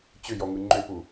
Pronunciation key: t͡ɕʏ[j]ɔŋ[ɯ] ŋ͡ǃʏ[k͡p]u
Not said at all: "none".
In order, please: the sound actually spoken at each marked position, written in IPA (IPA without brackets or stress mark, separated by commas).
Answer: j, ɯ, p